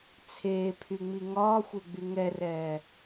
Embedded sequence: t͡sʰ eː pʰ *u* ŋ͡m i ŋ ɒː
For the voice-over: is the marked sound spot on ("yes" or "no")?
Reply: no